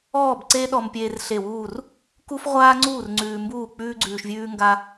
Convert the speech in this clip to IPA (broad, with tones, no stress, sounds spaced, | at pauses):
ɔː˥˨ b ǀ e˥ ɗ ɔ˧ m pʲ eː˧ r ɬ e˧˩ w uː˥˨ r | k u˥ f ʁʷ aː˥ ŋ͡ǀ uː˥˨ r ŋ͡ǀ ʉː˧ m b uː˥˨ k͡p ʉː˥ ɡ͡ǀ ʉː˧ ʃ vʲ ʉː˥ ŋ ɡ a˥